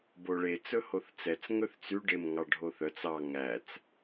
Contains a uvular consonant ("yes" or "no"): no